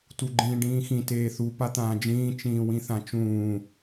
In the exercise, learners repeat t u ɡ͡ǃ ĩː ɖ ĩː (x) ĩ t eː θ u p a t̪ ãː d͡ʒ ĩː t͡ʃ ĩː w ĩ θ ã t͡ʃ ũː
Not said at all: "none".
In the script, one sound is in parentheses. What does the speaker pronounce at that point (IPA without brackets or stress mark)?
x